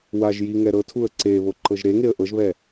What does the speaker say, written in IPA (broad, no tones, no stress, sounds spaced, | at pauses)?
w a ʒ j i ŋ ɛ ɾ ɤ tʰ u ə̯ ǀ e β o ǃ ɤ ʒ ɾ e ŋ e ə̯ ʔ ɤ ʒ β ɛ